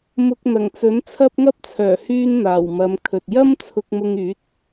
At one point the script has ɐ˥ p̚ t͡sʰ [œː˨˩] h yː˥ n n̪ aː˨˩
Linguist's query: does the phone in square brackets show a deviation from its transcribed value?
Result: no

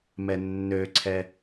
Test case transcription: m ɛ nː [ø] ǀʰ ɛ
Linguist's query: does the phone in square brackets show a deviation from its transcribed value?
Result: no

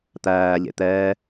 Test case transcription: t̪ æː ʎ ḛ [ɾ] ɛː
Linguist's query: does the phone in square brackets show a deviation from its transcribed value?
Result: yes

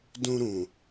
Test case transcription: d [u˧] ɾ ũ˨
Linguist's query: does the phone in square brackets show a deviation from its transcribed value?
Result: yes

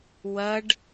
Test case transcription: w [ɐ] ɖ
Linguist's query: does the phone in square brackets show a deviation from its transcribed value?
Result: no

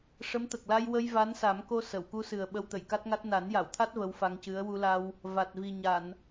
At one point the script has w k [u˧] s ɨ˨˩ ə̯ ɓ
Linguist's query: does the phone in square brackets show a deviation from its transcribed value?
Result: no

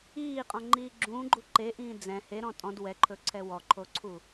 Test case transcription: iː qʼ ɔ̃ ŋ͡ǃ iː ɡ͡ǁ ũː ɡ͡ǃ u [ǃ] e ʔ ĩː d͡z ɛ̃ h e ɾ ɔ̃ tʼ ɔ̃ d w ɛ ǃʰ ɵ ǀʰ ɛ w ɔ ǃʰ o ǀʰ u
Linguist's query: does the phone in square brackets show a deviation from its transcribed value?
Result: no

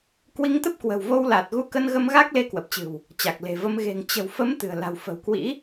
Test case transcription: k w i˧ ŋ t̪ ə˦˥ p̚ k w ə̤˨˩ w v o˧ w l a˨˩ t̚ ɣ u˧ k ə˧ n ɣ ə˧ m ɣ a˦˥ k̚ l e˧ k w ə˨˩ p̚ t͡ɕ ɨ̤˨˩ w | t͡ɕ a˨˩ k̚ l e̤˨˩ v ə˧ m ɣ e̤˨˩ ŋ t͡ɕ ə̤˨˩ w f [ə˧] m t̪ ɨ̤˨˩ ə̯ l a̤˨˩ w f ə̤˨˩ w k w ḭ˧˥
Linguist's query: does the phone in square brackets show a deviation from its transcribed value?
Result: yes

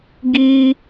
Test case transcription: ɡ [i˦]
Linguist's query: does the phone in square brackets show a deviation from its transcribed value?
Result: yes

